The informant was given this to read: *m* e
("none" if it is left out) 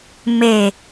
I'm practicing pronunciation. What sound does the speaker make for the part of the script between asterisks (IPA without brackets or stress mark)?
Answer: m